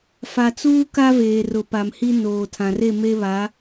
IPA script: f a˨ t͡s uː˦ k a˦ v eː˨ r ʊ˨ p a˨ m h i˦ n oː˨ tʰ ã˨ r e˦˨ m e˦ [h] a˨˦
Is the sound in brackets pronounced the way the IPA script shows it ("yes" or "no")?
no